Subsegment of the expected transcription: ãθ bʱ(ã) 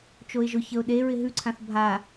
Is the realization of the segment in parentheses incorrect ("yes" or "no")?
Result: yes